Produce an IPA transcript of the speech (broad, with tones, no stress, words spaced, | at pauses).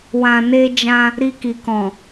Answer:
wã˨ne˧d͡ʒã˧ | ɾi˧ki˨ kɔ̃˨